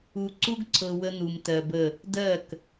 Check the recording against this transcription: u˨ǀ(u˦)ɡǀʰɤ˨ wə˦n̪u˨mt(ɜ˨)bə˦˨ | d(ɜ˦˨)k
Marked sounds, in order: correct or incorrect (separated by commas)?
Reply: correct, correct, correct